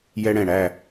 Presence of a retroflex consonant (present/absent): present